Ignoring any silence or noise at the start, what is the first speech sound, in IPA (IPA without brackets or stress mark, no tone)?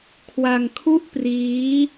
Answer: kʰ